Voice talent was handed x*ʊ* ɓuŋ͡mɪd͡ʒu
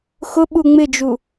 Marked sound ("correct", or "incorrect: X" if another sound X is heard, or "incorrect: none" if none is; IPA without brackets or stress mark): correct